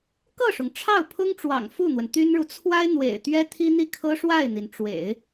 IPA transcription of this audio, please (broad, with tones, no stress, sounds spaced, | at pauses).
k ɤ˥˩ ʂ ʊ˩ ŋ ʈ͡ʂʰ ɑ˥˩ ʊ̯ pʰ ʊ˥ ŋ ʈ͡ʂ w ɑ̰˨˩ ŋ f u˥˩ n̪ w ə˩ n t̪ y˥ n ɻ u˨ t͡sʰ w a˥ ɪ̯ n̪ w ḛ˨˩ ɪ̯ t̪ ɥ ɛ˥ t̪ʰ i˥ n̪ i˥˩ kʰ ɤ˥ ʂ w a˥˩ ɪ̯ n̪ i˩ n ʈ͡ʂ w ḛ˨˩˦ ɪ̯